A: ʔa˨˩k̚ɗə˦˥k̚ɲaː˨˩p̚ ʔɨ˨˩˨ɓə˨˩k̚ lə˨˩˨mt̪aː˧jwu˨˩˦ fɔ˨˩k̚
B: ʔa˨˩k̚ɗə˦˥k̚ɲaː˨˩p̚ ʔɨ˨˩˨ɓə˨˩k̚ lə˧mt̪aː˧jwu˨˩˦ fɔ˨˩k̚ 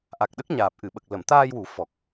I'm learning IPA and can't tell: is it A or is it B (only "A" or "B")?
A